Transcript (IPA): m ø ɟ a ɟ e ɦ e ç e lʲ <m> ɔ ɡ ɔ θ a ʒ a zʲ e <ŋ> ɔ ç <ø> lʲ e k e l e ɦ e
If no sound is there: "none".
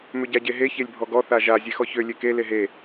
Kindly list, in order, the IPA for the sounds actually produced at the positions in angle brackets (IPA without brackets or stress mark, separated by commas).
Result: bʱ, x, ø